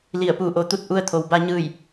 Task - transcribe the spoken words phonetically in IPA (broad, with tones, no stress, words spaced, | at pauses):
li˧˩ə̯puː˧˩ʔo˩˧t̪u˧t̚ ʔu˧ə̯t̪ʰo˩wba˧ ɲɯː˧˩j